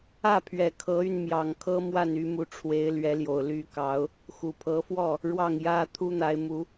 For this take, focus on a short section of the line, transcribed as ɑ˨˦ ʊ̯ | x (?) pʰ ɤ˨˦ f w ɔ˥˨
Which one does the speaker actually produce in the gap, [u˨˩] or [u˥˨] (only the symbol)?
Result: u˨˩